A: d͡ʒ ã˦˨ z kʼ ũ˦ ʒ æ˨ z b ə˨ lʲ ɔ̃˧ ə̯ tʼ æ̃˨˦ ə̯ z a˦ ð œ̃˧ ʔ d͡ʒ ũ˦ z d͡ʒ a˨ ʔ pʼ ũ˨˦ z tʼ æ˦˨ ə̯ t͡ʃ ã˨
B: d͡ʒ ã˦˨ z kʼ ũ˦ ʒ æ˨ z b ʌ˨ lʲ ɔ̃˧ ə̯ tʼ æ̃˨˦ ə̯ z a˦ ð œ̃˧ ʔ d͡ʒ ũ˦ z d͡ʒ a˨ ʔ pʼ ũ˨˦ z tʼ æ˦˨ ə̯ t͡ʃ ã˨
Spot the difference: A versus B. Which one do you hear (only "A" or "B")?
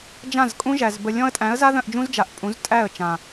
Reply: A